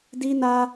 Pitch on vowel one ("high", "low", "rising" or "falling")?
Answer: high